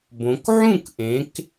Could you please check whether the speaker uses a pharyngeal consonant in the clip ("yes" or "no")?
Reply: yes